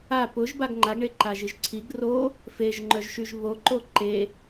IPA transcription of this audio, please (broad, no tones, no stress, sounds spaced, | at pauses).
a p ʊ ʒ b a ɡ ŋ͡ǃ a ɡ ɳ e ǃ a ʒ i ʒ ǀʰ i ɡ r o | f e ʒ ŋ͡ǃ œ ʒ ʃ y ʒ β o ǃ o ǃ e